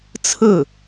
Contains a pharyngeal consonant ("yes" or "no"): no